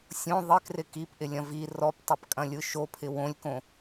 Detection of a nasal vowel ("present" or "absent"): present